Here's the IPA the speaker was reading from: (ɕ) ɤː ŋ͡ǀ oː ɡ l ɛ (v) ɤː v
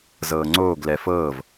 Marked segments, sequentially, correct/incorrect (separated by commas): incorrect, incorrect